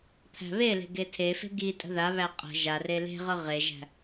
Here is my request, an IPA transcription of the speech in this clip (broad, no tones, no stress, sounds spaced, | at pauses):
pʰ æ̤ β e l e̤ ɡ e tʰ e f e̤ ɡ i tʼ ə̤ ð a β æ qʼ ə̤ ʒ a r e l e̤ ʁ ɤ ʁ e ʒ æ̤